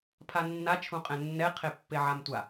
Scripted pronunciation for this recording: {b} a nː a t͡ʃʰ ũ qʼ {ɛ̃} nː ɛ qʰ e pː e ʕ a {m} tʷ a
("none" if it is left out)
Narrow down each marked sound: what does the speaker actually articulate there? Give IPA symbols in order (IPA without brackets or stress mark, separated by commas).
pʰ, ɛ̃, m